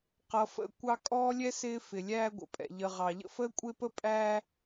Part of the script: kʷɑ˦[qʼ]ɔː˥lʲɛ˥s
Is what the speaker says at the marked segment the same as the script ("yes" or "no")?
no